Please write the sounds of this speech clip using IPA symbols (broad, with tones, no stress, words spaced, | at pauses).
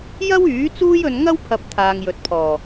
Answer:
jɐ˥wyː˨˥ t͡suː˥jɵ˧n ŋɐ˥wpʰɐ˨˥p̚ t̪ʰaː˨ŋjɵ˨t̚pʰɔː˨˩